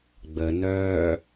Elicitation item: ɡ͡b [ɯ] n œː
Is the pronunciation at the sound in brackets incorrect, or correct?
incorrect